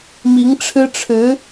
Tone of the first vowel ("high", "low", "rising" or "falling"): rising